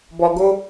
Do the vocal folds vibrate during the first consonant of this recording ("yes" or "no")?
yes